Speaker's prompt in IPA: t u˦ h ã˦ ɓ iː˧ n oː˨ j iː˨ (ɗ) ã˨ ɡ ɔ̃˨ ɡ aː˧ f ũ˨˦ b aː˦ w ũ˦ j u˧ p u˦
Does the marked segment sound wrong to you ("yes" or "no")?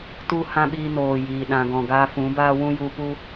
no